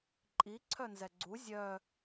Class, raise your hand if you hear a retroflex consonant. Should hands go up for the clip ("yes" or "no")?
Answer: no